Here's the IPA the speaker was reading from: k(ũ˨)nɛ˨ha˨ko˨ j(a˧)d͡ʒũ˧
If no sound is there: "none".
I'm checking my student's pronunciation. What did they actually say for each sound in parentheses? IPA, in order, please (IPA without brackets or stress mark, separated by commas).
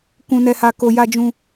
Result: ũ˨, a˧